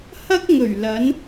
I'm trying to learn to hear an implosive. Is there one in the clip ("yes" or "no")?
no